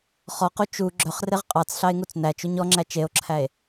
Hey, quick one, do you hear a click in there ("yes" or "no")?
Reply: yes